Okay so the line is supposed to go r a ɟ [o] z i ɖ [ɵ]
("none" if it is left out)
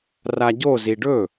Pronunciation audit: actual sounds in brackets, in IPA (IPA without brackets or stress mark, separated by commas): o, ɵ